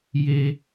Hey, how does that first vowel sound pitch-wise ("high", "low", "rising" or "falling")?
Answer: high